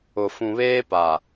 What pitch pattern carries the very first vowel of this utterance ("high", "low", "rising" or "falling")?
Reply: low